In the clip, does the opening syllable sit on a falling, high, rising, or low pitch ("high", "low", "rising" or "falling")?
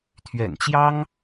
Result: low